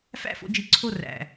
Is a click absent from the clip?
no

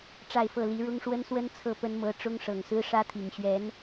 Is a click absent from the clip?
yes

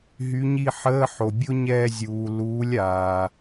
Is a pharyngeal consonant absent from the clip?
no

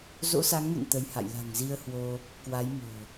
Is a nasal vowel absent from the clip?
yes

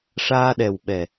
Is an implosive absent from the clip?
no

